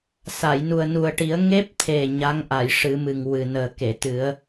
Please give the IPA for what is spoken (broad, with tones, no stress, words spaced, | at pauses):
sa˨˩˨jnu˨˩ə̯nu˨˩ə̯ʈi˨˩˦ə̯ ŋe˦˥p̚t̪ʰe˨˩ ɲa˧˥ŋʔa˨˩˨j ʂɨ˨˩˦mɨ˨˩ŋ wɨ˨˩nəː˨˩ke˨˩˨t̪ɨ˨˩˦ə̯